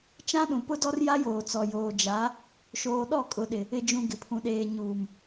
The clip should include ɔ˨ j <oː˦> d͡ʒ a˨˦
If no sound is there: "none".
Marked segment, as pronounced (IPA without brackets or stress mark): oː˨